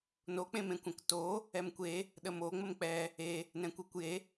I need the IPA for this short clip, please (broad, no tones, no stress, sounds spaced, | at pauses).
n o k͡p ẽ m ẽ kʷ ɛ̃ k t o | ɛ m kʷ e | ɗ ə m o ŋ͡m ə m k͡p ɛ | e | n ɛ̃ kʷ e kʷ j e